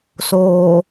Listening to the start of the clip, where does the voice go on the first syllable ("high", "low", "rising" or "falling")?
low